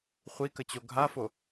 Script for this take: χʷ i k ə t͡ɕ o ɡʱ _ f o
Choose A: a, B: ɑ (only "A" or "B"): A